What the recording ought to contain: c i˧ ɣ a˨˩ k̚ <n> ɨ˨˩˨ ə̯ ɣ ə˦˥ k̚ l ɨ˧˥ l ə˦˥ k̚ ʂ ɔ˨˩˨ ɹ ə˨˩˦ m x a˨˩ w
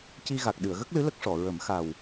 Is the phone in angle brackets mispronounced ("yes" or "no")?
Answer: yes